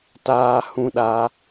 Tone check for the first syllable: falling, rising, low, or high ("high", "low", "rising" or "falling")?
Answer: high